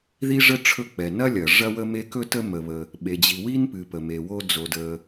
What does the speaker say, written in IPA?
ði˥ʐə˥ ʈ͡ʂʰɵ˥k͡pɛ˩ nɐ˥lʲɐ˩ ʐɐ˥wə˥me˥ kɵ˥ tə˥ mə˩βə˩ | ɓe˩d͡ʑi˩ wi˥npɨ˩ pə˩me˩wo˥ d͡zo˩də˩

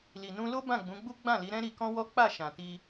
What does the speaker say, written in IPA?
li˨nũ˧lo˦ bã˦˨ɡ͡bũ˨˦ɡ͡bu˦ ɡ͡bã˦˨li˨˦ɾɛ̃˦ ɾi˧kɔ̃˦wɔ˦ k͡pa˦˨ʃã˨ti˧

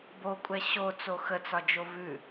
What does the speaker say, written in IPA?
bokʷʼɛ ɕot͡so xət͡sɒd͡ʒo vʉ

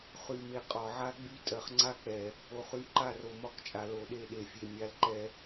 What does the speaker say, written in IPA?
χy˨me˨ qʼɒ˨ʕa˦ɡ͡by˦ tʼɜ˨χŋ͡ǀa˦k͡pɛ˨ | o˨χy˨˦ǃa˦˨r o˨mɒ˦kt͡ʃʼa˨ lo˨ɗe˦˨ɗe˨fʲe˨ mʲa˨lǃɛ˨

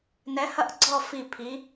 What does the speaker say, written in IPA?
nɛ˨˥hɐ˦˨ʔɡ͡ǀɔ˦˨ fi˦˨pʰi˨˥

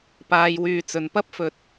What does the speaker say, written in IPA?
paː˨jwyː˨ t͡sɵ˨˩npɐ˥p̚fɵ˨t̚

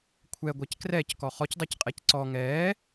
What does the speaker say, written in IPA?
kʷʰɛɡʷɛc krɛckɔ χɔcdˤɛcqʼɛc ǀɔ ŋɛː

